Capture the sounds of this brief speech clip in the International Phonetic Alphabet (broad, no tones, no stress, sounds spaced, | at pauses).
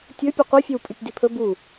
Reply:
tʲ ɵ pʲ ɨ qʷ i fʲ ɵ w pʼ ʉ tʲ d i pʰ ɵ b u